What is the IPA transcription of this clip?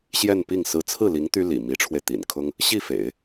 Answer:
ɕjɛ˥˧npi˥˩ŋ sɹ̩˧˥t͡sʰɹ̩˥˩li˧˥ŋ t̪y˥lḭ˨˩mi˧˥ʈ͡ʂʰwe˧ɪ̯ t̪ḭ˨˩nkʰʊ˥ŋ | ɕi˥˩fḛ˨˩˦ɪ̯

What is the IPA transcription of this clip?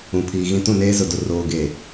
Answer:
ũ˨pʰiː˨ɣĩ˦ tũ˦˨neː˦zʊ˨dʊ˨ roː˨ɡeː˨

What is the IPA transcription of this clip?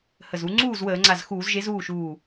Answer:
hə˧˩zu˨˥ ŋ͡ǀuː˥˩zwəː˧˩˧ŋ͡ǀa˧˩z xuː˧˩˧zʒe˨˥z uː˥˩ʃuː˧˩

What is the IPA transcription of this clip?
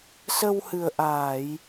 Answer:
sə˧whɨ˨˩ə̯ ʔaː˧˩˨j

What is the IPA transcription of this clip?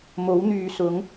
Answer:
mo˨˥wn̪yː˨sʊ˨˥ŋ

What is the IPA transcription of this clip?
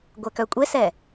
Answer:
ɡʷɛkœkʷʼesɛ

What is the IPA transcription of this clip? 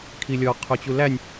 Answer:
kʰilʲɔ qʰot͡ɕulænʲ

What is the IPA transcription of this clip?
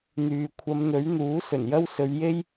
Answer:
n̪yː˨ kʷʰɐ˨˧mn̪ɵ˨˥ɥn̪uː˨˥ sɵ˨˩njɐ˥wsɵ˨˧ɥje˥j

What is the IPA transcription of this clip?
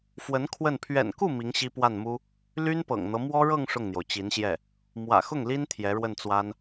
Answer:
fwə˧˥n kʰwə˥˩n pʰɥɛ̰˨˩nku˥˩ mi˧˥ŋɕi˥pwa˥˩nmu˥ | ly˥npɤ̰˨˩ŋn̪ɤ˦ mwɔ˥ɻɤ˥˧ŋ ʂʊ˥˩ŋn̪jo˩ʊ̯t͡ɕi˧˥nɕjɛ˥˩ | mwä̰˨˩xʊ˥˩ŋli˥n t̪ʰjɛ˧˥ɻwə˥˩nt͡swa˥n

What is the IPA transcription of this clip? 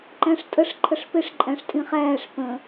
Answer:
ǃæ̃ʂtʼəʂ ǃʰəʂpɪʂ ǃʼæ̃ʂtʼĩχæːʂ pə̃

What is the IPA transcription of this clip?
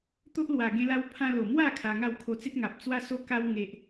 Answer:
t̪o˦ʔlwa˨˩ ɡẽ˦la˦w pʰã˧lo˨˩mwa˥˧ kʰa˧ŋa˥˧w kʰo˧t͡se˦t̚ŋa˨p̚ t͡swa˦so˦ka˦w ŋe˦ʔ

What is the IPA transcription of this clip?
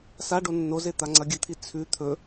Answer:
sa ɖonːoze t̪aŋ͡ǀɐɡʲɨt̪ʰi t͡sʰʉ t̪ʰɵ

